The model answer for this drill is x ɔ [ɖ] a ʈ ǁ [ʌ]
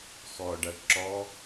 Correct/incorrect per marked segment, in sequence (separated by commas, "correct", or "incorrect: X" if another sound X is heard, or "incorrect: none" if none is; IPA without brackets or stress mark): correct, incorrect: ɔ